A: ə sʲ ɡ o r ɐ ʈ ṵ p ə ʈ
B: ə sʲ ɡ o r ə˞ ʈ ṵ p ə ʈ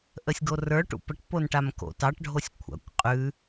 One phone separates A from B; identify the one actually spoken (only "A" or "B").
B